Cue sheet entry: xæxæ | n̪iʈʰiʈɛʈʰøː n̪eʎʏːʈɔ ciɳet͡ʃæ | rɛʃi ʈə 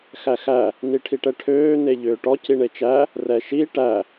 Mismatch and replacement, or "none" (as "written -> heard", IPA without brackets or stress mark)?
ə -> æ